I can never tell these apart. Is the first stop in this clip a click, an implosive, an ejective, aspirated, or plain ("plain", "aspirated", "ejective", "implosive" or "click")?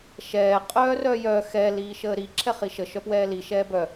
ejective